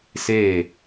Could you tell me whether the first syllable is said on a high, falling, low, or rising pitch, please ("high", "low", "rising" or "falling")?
falling